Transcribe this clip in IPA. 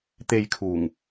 t̪e˧j kʰuː˨˩ŋ

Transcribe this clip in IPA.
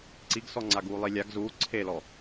ǀiɡsɔŋ͡ǀa ɡuːlˠilʲaɡ zuː ǀʰelɔ

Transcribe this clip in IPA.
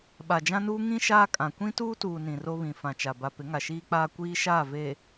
ɓa˨d͡ʒã˦nuː˦ ŋĩ˦ ʃaː˦kʼã˨ kʷĩ˦tuː˦tuː˨ nĩ˨ro˦βĩ˨ fã˨t͡ʃa˨ ba˨ pɪ˨˦ŋa˨ʃiː˦k͡paː˦ kʷiː˦ ʃaː˦˨veː˨

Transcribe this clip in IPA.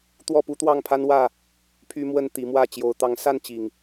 t̪wɔ˥˨pu˦t̪wɑ˥˨ŋpʰa˦n wä˥˨ | pʰy˦mwə˦n t̪i˨˦ mwä˥˨ t͡ɕjo˨˦ʊ̯t̪ɑ˨˦ŋsa˥˨n t͡ɕi˨˩ŋ

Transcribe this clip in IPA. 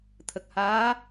t̪ʰə˨˩k̚haː˧˥

